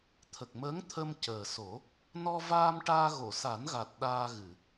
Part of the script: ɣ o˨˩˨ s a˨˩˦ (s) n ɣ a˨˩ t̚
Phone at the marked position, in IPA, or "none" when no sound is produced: none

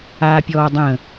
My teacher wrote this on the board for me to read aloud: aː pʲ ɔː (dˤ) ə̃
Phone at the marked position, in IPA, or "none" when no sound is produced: dˤ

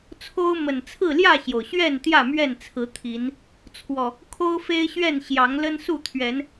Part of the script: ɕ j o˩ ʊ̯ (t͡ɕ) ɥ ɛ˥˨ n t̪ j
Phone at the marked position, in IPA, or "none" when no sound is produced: ɕ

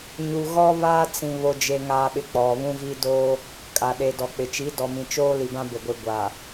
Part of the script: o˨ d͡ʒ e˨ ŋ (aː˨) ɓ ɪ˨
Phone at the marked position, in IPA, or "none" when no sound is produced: aː˨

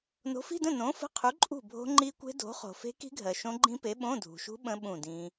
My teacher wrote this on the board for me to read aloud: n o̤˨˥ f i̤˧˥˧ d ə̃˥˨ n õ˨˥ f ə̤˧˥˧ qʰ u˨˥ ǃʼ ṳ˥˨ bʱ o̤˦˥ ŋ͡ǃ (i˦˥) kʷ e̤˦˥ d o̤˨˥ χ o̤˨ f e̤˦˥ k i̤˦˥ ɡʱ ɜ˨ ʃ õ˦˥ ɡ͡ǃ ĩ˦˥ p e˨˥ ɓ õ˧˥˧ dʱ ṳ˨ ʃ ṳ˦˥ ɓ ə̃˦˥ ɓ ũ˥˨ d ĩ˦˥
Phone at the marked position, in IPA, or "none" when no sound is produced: i˦˥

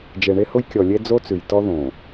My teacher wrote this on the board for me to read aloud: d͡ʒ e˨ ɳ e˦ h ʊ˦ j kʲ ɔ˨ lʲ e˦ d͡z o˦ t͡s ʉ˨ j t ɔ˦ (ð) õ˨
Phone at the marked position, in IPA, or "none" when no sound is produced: ð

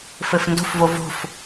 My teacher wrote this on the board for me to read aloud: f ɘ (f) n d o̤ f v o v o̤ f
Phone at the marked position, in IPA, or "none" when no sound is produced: f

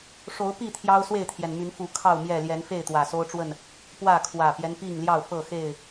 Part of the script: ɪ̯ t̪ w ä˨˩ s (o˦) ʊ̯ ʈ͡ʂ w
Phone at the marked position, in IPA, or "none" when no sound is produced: o˦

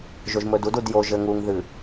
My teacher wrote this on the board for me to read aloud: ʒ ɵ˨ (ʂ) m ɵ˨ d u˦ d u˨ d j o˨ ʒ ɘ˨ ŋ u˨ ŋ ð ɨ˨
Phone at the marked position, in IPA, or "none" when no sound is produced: ʒ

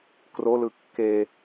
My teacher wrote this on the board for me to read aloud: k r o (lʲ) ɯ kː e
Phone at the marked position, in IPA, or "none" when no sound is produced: l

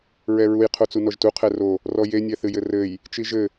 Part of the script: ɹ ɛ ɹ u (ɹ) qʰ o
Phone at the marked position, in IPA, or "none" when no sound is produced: j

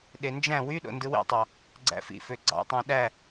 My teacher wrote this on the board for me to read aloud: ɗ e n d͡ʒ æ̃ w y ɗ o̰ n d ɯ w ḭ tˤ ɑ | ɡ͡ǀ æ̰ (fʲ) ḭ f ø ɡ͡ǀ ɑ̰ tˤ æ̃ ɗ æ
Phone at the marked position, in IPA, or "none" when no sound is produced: f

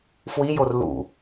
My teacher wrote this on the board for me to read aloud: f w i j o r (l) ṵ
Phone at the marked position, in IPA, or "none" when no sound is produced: l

